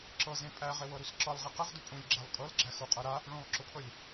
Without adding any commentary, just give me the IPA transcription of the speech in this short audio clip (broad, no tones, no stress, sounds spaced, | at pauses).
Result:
ǁ ɤ z ẽ pʼ æ ʁ e w ɤ ɾ u s ǁ ɤ lˠ ʁ e q ɘ ʁ d ʊ pʼ ũ lʲ ɡ͡ǁ æ lˠ kʼ ɤ l ɡ͡ǁ æ x u qʼ ɤ ɾ a | ɭ ũ lˠ ǁ ʊ pʰ ɤ lʲ